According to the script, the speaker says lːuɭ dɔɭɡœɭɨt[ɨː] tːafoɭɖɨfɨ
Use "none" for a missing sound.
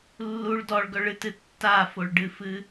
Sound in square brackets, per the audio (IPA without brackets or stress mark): ɨ